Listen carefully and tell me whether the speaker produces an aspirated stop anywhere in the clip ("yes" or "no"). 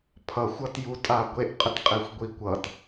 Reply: yes